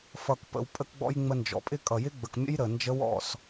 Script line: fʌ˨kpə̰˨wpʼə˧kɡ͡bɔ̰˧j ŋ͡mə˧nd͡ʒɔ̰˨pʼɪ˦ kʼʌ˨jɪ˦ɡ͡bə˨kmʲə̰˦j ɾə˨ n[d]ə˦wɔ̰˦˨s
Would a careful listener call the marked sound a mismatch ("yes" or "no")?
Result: yes